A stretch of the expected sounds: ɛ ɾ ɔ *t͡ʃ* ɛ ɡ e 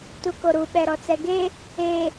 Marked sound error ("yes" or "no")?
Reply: yes